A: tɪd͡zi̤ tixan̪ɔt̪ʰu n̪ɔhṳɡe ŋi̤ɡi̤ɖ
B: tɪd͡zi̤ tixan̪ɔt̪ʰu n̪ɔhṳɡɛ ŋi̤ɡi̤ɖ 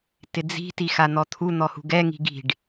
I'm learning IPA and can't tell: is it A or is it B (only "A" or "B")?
B